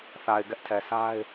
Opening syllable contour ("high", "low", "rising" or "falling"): low